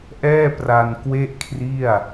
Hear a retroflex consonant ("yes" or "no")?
no